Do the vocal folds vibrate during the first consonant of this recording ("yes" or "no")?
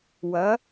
yes